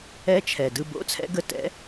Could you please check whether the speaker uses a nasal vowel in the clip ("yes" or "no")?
no